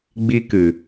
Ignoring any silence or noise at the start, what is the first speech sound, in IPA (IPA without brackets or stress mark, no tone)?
ɡ͡b